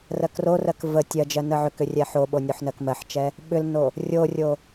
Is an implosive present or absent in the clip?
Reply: present